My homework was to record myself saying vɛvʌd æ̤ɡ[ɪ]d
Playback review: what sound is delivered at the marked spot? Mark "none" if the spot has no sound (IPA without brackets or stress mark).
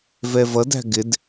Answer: ɪ